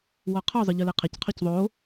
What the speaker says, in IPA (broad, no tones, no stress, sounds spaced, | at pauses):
w ɔ qʰ ɔ zˤ ə˞ ʎ ə˞ l e qʰ ɛ c qʰ o c ðˤ o